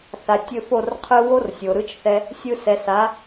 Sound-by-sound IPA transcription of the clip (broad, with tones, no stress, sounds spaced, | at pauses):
θ a˨ tʲ ɵ˧ f o˦˨ r qʰ ɯ˧ w o˦ r sʲ o˨ ɾ ɯ˦ t͡ʃ θ ɛ˦ | sʲ ɯ˧ s ɛ˨ s a˨˦